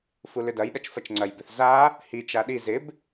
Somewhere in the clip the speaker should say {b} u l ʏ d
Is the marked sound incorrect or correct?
incorrect: f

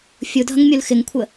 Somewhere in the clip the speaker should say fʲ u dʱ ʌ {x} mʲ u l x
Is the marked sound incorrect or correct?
incorrect: ŋ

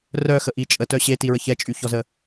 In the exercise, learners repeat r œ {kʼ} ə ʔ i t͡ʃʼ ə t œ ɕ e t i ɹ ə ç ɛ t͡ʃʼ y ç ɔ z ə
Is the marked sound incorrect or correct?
incorrect: x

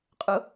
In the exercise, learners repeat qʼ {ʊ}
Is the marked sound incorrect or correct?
correct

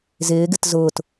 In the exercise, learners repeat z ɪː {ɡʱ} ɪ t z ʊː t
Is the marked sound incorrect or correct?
incorrect: ɡ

